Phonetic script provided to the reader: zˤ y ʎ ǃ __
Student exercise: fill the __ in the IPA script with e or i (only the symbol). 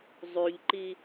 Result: i